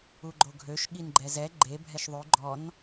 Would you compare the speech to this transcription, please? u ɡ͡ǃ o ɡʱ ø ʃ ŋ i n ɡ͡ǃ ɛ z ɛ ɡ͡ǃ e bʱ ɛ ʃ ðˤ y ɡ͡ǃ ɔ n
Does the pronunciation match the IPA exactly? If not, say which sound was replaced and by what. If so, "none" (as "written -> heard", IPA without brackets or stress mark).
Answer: ŋ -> ɠ